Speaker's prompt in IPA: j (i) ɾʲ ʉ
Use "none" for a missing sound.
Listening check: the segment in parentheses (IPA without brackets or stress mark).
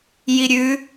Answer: i